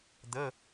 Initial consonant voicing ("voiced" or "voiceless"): voiced